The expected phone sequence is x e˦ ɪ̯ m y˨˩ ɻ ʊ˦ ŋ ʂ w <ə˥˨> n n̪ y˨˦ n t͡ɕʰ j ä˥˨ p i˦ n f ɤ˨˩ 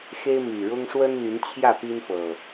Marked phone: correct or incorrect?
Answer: incorrect: ə˦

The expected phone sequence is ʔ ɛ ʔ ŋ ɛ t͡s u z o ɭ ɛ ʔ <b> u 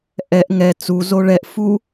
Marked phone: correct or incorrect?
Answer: incorrect: f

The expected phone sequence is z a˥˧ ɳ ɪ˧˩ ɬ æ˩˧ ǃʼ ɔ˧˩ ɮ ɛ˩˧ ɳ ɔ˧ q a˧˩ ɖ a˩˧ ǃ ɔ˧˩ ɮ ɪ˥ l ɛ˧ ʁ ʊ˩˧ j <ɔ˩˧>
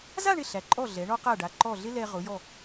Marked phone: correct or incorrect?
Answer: incorrect: ɔ˧˩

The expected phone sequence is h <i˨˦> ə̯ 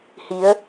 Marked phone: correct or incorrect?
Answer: correct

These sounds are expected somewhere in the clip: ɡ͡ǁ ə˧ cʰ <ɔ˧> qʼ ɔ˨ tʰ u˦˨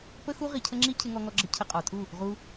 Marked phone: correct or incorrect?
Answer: incorrect: ə˧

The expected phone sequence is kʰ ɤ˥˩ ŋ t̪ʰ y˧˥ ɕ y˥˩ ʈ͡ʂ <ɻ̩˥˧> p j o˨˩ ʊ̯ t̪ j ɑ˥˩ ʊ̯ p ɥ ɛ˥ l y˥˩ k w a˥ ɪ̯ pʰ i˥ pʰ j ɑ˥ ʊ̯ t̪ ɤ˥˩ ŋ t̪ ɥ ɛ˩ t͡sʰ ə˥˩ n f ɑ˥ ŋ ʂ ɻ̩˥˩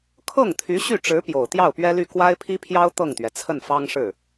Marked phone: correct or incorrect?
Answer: incorrect: ɻ̩˧˥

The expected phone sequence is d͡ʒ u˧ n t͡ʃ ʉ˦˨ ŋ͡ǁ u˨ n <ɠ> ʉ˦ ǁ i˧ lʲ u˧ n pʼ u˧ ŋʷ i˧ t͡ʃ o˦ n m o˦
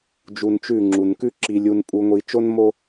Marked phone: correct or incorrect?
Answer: incorrect: k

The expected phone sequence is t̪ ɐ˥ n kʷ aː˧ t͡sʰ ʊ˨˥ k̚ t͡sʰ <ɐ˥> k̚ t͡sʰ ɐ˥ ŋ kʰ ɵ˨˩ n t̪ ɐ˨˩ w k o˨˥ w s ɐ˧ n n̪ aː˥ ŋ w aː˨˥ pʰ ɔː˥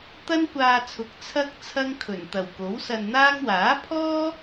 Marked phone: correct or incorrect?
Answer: correct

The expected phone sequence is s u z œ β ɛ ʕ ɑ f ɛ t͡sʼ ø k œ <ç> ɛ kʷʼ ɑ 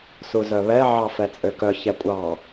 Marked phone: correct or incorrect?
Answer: correct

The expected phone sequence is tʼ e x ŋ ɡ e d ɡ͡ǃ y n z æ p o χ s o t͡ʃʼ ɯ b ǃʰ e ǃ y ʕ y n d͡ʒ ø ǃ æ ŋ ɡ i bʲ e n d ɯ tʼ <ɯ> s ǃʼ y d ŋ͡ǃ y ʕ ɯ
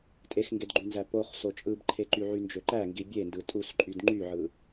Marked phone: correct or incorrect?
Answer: incorrect: u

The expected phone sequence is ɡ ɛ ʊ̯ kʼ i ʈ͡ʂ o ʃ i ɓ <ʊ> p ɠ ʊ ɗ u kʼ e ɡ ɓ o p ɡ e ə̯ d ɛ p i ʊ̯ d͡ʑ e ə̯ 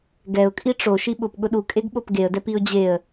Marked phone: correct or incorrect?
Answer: correct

